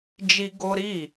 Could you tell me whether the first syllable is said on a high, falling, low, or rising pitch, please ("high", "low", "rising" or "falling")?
high